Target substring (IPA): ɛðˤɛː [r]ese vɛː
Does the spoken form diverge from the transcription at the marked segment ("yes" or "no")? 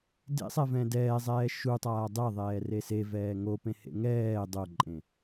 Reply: no